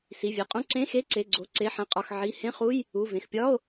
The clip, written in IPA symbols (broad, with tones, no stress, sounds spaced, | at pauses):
s i˩˧˩ vʲ e˩˧˩ qʼ ũ˧˥˧ ǀ ẽ˧˥˧ x e˧˥˧ ǀ e˩˧˩ ɡ͡ǀ o˩˧˩ ǀ e˩˧˩ ħ ẽ˩˧˩ qʼ ɒ˩˧˩ x ʕ i˩˧˩ h ẽ˧˥˧ χ u˧˥˧ j | u˩˧˩ v ẽ˩˧˩ x pʲ ɒ˧˥˧ o̯